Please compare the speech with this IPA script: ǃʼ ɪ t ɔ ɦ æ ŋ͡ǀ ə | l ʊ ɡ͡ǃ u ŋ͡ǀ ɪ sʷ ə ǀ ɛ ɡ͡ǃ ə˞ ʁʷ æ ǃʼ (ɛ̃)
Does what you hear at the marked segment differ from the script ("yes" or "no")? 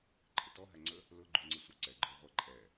yes